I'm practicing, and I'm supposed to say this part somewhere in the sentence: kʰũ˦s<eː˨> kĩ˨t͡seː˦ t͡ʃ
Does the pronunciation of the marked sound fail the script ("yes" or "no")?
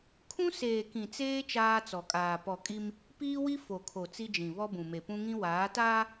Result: no